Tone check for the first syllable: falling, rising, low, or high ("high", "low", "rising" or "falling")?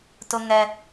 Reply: high